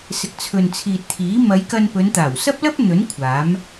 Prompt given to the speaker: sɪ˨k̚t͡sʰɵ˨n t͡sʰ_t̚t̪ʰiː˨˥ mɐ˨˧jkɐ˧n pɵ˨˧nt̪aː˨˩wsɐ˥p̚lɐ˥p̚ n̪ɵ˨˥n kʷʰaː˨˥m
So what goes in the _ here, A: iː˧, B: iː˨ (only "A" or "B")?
B